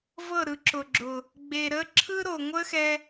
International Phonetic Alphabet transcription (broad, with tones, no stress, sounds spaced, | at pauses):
v ɤ˦˨ ɾ ɯ˨˦ ǁ ʊ˨ ɡ͡ǁ ʊ˨ | ɡ͡b e˨ ɾ ə˦ ǁʰ ɯ˦ ɾ o˨ ŋʷ ə˦ x ɛ˧